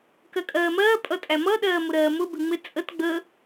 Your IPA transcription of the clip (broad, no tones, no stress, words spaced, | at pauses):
kɜkʼɜːmɜː pʼʌtʼæmʌ ɗɜːmʊɾɜːmʊ bɪŋ͡mɪ t͡sʼət ɡ͡bə